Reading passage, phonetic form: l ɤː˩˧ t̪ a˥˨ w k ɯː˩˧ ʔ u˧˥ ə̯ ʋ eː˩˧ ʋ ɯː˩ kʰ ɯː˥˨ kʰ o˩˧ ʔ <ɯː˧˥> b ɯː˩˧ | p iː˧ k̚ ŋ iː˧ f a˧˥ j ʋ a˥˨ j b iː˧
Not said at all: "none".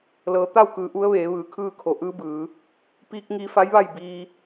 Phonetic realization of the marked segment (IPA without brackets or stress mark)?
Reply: ɯː˧˥